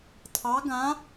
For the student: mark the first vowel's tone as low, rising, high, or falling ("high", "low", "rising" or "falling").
rising